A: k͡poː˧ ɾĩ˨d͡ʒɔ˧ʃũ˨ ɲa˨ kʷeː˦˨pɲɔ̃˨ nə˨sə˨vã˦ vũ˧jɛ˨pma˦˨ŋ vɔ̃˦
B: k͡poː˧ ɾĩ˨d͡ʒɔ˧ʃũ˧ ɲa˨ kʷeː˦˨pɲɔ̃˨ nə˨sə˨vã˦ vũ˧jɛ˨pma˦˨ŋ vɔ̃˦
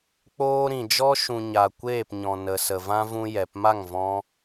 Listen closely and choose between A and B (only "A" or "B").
A